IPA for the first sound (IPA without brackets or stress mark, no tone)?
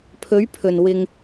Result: pʰ